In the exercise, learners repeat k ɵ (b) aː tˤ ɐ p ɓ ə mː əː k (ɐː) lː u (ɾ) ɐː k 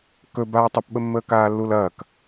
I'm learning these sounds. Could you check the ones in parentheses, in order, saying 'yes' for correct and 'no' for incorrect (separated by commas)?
yes, no, no